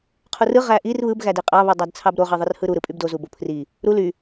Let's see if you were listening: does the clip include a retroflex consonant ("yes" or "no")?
no